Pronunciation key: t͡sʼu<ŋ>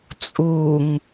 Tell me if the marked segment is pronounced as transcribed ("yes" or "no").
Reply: yes